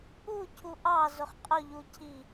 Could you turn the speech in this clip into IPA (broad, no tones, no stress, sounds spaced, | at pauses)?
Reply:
u cʰ u ʔ ɑ z ʊ χ qʼ ʊ ʎ u cʰ i